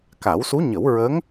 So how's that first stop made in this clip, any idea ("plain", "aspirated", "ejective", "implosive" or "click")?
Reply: plain